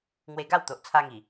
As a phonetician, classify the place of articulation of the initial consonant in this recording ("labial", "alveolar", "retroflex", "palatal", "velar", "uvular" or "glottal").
velar